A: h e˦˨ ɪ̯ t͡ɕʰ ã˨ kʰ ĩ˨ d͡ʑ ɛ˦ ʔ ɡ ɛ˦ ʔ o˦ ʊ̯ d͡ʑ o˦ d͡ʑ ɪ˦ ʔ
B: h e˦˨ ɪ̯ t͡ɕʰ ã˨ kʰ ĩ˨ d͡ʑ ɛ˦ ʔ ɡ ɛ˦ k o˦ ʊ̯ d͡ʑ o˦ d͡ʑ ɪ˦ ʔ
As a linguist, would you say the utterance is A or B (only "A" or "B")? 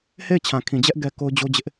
B